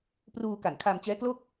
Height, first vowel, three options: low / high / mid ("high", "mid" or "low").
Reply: high